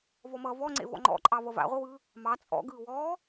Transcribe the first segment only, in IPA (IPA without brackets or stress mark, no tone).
v